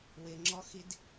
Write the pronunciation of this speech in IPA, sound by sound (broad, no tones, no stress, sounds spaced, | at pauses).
w ɪ ŋ͡ǁ ɔ x i d